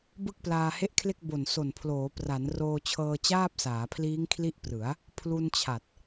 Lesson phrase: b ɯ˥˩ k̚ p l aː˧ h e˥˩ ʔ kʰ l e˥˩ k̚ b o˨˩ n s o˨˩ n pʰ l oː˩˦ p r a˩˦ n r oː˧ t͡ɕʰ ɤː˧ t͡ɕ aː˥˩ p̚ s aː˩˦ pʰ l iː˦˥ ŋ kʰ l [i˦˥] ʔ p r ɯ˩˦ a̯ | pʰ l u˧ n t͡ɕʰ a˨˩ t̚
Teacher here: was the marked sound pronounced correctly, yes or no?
yes